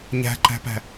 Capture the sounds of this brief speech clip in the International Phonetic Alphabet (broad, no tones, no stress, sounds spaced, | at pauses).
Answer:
ɲ æ̤ ǃ æ̤ p æ̤